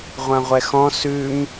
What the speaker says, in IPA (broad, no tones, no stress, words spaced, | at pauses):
ʁʷãʁʷɛxɔ̃ sʉm